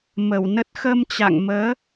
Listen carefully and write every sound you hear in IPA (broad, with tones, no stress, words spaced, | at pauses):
mə˧˩wnə˦˥t̚ xə˧mt͡ɕa̰˧˨ŋməː˨˦